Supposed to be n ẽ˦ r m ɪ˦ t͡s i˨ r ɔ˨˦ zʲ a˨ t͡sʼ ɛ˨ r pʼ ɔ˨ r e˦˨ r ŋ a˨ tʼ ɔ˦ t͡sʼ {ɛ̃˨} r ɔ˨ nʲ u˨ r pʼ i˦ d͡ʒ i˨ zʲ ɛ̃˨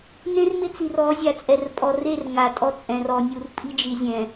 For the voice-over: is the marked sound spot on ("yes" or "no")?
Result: yes